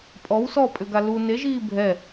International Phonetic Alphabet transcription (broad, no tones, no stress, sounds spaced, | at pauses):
pʼ ɔ w s ɔ pʼ ʏ ɡ a l u n e ʒ iː bʱ ɛ